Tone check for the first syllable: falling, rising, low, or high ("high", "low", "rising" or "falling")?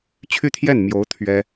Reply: falling